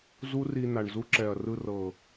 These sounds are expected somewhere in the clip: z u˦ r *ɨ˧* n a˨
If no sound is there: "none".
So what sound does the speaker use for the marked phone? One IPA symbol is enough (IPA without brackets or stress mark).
i˧